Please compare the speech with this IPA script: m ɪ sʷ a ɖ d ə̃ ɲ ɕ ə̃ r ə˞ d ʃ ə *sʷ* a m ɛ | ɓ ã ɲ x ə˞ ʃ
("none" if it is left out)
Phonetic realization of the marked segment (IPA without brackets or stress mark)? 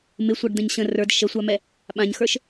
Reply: sʷ